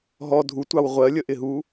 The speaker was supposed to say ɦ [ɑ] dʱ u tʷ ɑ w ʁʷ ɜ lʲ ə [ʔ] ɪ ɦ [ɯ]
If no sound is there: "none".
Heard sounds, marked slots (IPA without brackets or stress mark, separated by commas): ɔ, ʔ, u